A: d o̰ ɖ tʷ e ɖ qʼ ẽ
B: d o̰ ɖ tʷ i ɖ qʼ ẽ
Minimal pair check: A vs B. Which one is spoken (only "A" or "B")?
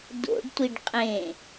B